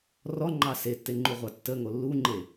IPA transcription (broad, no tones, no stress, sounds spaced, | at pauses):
r ɔ ŋ͡ǃ ɑ s e tː e ŋ͡ǃ u ʁʷ ɑ tː ə ŋ o lː u ŋ͡ǃ e